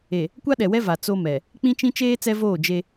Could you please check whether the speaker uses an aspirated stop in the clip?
no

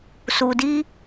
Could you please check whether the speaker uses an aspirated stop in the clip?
no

